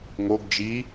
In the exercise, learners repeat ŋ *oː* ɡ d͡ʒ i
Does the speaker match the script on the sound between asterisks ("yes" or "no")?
no